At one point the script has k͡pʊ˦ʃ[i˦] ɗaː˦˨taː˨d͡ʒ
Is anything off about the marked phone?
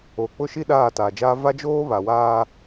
no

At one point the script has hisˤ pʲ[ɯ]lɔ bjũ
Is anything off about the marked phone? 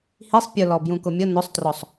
yes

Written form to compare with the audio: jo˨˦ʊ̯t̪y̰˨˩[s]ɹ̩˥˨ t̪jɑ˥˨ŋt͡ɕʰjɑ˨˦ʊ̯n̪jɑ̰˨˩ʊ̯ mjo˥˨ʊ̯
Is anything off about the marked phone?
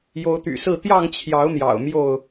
no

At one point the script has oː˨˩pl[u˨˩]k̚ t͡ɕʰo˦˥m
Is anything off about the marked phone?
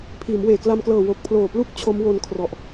yes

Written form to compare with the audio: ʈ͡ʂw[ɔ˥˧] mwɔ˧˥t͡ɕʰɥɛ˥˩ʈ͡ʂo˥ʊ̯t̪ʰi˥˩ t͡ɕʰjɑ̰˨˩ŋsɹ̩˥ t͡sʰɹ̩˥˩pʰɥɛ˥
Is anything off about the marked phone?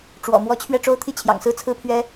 yes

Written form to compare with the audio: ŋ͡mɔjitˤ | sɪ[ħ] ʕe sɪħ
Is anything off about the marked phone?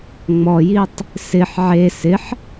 no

